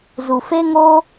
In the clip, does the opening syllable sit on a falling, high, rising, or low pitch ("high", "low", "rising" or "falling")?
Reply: low